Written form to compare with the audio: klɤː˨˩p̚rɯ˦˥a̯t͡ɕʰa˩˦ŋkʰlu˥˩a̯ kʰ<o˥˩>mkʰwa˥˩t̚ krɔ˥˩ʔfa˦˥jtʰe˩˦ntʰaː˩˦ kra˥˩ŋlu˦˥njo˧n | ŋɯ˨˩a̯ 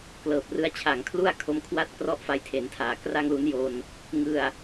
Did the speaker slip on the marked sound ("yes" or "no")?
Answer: yes